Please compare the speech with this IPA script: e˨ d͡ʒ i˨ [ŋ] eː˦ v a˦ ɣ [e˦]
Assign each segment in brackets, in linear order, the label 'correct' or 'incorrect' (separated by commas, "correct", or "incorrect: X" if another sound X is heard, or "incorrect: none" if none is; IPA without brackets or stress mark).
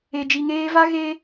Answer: correct, incorrect: eː˦